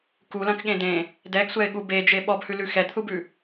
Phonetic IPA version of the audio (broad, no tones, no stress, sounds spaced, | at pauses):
k u l ɐ̃ k ɠ ẽ d ẽ | d ɛ ɡ sʷ ɛ e̯ ɠ u b e d͡ʒ e ɓ ɔ b h ʉ l ʉ x ɛ d θ u b ʉ